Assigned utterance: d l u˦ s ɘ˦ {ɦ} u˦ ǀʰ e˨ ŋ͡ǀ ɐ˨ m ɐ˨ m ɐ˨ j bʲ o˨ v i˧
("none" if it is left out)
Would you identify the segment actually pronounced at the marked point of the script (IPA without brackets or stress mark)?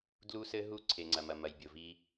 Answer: ɦ